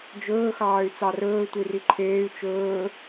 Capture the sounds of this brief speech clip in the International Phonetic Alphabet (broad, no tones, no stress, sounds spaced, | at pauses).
d͡ʒ ɵː x ɑː y̯ t͡s ɑ r ɵː tʷ i r i ǃʰ eː y̯ t͡ʃ ɵː